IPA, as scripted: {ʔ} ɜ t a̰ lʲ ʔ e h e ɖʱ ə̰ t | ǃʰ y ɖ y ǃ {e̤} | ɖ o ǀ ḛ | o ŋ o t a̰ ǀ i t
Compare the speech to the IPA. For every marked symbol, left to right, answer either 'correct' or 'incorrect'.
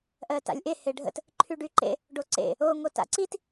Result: correct, incorrect: ḛ

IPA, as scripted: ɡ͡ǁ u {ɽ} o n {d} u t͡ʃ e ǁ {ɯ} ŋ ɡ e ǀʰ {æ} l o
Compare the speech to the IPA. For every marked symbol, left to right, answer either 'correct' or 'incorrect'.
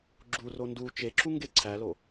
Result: incorrect: r, correct, incorrect: u, correct

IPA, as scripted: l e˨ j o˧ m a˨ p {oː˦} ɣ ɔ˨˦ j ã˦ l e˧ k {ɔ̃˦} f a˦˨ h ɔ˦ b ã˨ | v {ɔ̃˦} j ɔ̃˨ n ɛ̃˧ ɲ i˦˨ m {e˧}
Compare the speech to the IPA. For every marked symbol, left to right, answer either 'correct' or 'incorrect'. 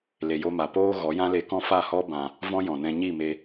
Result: correct, correct, correct, correct

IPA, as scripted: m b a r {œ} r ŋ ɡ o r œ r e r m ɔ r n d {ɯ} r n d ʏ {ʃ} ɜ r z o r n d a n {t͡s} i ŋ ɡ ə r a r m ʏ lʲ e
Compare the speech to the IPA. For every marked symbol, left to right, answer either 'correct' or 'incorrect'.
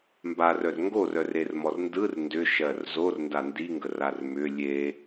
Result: correct, correct, correct, incorrect: d

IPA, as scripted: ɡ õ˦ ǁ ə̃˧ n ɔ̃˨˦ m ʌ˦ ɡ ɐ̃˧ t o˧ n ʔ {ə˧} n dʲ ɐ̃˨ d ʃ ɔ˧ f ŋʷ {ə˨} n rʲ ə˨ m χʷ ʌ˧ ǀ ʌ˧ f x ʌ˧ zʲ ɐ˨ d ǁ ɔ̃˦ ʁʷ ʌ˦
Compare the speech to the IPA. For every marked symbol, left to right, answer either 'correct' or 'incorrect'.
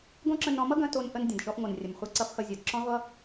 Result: correct, incorrect: ʌ˨

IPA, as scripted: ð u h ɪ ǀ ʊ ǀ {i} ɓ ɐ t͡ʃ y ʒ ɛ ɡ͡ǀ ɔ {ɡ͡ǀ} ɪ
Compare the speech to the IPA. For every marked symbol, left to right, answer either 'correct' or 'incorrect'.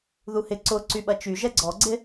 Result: incorrect: y, correct

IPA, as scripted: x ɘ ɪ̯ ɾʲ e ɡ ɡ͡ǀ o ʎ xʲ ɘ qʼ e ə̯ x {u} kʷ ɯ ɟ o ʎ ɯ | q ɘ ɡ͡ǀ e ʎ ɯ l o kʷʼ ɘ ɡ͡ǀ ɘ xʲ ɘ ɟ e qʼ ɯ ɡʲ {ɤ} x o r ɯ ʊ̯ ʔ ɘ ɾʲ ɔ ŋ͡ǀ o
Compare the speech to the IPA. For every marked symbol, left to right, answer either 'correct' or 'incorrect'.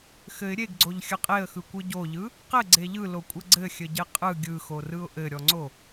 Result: incorrect: ɯ, incorrect: ɯ

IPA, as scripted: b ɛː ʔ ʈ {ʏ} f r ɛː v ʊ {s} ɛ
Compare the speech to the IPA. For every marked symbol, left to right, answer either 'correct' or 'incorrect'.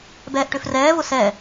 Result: correct, correct

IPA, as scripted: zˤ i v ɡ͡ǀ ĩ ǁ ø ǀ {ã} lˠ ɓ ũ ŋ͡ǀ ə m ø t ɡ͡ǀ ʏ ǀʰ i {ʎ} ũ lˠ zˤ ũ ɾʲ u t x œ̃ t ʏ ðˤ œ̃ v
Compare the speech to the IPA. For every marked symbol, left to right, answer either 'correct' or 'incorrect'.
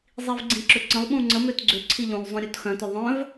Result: incorrect: ə̃, correct

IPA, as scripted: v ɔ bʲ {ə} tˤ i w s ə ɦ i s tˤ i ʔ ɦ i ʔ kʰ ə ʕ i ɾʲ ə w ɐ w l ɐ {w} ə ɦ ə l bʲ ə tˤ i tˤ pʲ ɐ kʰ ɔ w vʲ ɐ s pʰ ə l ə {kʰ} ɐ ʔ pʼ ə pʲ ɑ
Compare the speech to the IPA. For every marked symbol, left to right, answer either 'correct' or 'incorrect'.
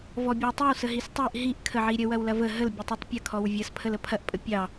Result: incorrect: ɑ, incorrect: v, incorrect: pʰ

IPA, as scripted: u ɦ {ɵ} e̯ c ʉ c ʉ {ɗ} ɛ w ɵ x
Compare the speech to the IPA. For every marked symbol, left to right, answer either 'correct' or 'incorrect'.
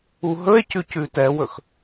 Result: correct, incorrect: t

